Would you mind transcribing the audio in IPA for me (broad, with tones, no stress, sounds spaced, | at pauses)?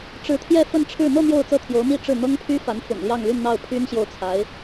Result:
ʈ͡ʂ ɻ̩˧˥ t̪ʰ j ɛ˥˧ f ə˥˧ n ʈ͡ʂʰ ɻ̩˥˧ n̪ ɤ˥˧ n̪ j o˥˧ ʊ̯ t͡s ɤ˥˩ t̪ʰ j o˧˥ ʊ̯ m i˥˧ ʈ͡ʂ ɻ̩˥˩ n̪ ɤ˥ ŋ pʰ y˥ f a˧˥ n f ʊ̰˨˩ ŋ l j ɑ˥˧ ŋ l y˥˧ n n̪ ɑ˥˩ ʊ̯ pʰ y˥ n ɕ j o˥˩ ʊ̯ t͡sʰ a˧˥ ɪ̯